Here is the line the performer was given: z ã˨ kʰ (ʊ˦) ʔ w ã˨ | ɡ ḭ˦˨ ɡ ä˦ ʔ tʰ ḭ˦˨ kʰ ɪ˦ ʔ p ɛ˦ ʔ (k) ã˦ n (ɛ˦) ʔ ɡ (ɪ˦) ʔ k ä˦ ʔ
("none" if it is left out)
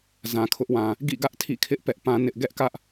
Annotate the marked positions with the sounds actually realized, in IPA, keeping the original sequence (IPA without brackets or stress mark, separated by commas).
ʊ˦, p, ɪ˦, ɛ˦